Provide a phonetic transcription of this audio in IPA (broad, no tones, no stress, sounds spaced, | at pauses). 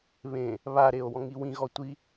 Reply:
β ẽ | β a ɾ e o̯ w ɔ̃ ŋ i w ĩ ɣ ɔ tʷ i